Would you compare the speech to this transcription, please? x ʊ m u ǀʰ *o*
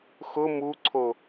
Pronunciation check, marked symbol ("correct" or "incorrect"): correct